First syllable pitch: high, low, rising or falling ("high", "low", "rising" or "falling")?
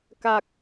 low